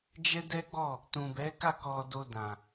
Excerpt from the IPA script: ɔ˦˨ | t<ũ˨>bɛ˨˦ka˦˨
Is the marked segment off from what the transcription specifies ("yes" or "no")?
no